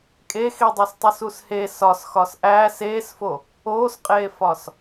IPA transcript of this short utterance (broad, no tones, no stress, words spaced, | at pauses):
kʼexidˤos tˤusushe sɒs xɒsʔæːs eːsfo | oːsqʼeːfɒs